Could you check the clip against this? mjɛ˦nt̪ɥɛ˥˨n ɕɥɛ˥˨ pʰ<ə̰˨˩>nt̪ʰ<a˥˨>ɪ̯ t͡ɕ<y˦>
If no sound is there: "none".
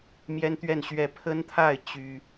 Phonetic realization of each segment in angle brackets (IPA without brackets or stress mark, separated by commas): ə˦, a˥˨, y˦